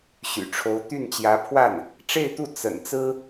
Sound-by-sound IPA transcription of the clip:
ɕ y̰˨˩ ʈ͡ʂʰ o˧˥ ʊ̯ t̪ y˥˩ n t͡ɕ j ä˧˥ pʰ w a˥˩ n | ʈ͡ʂ e˥˧ ɪ̯ t̪ u˥˩ t͡s ə̰˨˩ n t͡s ɹ̩˥

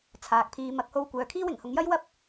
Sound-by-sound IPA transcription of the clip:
t͡sʰ aː˨ k̚ pʰ iː˧ m ɐ˨ k̚ h o˧ w kʷ œː˨ kʰ iː˥ w ɪ˨˩ ŋ h ʊ˨˧ ŋ j ɐ˥ j w ɐ˥ p̚

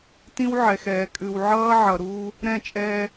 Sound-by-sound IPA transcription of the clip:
t ĩ˦ w ʕ ɛ˨ x ɛː˨ kʼ ʉ˨ w ʕ ʌː˦ ʕ ʌ˨ ɾ uː˦ | ɾ ɛ̃˦˨ t͡ʃʼ ɛː˦

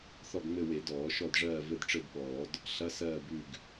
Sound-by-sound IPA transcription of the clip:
θ ɔ˦˨ ɡ ŋ͡m ɘ˦˨ w e˨˩˦ d ɔː˨˩˦ ʃ ɔ˦˨ d ʐ ɜː˦˨ v ɘ˦˨ d ʈ͡ʂ ɘ˦˨ d ɓ ɔː˨˩˦ d | ɬ ɐ˧˥˧ s ɜː˦˨ b ʉ˦˨ ɡ

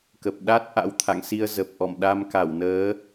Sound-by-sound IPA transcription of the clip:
k ə˨˩ p̚ ɗ a˦˥ t̚ ʔ a̰˧˥ w t̪ʰ a̰˧˨ ŋ s i˧ ə̯ z ə˨˩ p̚ ʔ ɔ̰˧˨ m ɗ a˧ m k a˧˩ w n əː˨˦

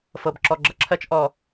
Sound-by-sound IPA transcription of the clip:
f ɤ˨ b ǁ ɔ˨ ɡ͡ǁ ʌ˦ ǁʰ ɜ˦ t͡ʃ ʔ ɔ˨

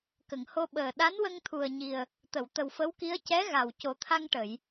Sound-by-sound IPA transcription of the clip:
k ə˨˩˨ ŋ h o˧ ɓ əː˨˩ ɗ a˧˥ n w ə˧ ŋ t̪ʰ u˨˩ ə̯ ɲ i˨˩ ə̯ | t̪ ə˨˩˨ w t̪ ə˨˩ w f ə˧˥ w k i˧˥ ə̯ c ɛ˧˥ ɣ a˨˩ w c o˨˩˦ t̪ʰ a˧ ŋ ʈ ə˨˩˨ j

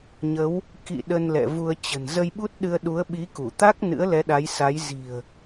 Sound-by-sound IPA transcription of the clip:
ɲ ə˨˦ w | k ḭ˧˨ ɗ ə˧ n l ɛ̰˧˨ v u˧ ə̯ t͡ɕ ə̤˨˩ n z ə˧ j ɓ u˦˥ t̚ ɗ ɨ˧ ə̯ ɗ u˨˦ ə̯ ɓ i˨˦ k u˧˩ t̪ a˦˥ k̚ n ɨ̰˧˥ ə̯ l ɛ˨˦ ɗ a˨˦ j s a˨˦ j z i̤˨˩ ə̯

